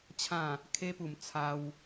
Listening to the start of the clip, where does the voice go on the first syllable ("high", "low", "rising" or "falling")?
falling